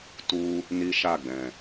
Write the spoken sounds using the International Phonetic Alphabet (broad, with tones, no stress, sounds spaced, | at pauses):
t u˦ | n i˦ ʃ a˦˨ ɡ͡b ɛ̃˨